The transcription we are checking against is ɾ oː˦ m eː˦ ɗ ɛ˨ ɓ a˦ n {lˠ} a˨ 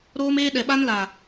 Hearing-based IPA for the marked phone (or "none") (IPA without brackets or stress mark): l